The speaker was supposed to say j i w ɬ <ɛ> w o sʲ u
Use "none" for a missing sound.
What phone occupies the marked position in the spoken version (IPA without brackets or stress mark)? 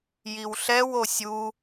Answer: ɛ